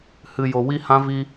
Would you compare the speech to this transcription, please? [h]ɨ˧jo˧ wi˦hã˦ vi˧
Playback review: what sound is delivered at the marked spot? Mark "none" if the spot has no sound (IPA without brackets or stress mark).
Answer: h